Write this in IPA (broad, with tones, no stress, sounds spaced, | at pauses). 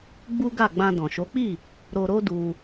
ɡ͡b u˦ ɡ a˦˨ ɡ͡b ã˧ d ɔ̃˨ ʃ o˨˦ k͡p i˦˨ | ɾ o˧ ɾ o˦ d u˧